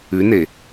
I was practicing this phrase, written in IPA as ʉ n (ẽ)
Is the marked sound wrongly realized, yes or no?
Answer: yes